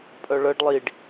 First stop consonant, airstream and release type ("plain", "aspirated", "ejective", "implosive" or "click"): ejective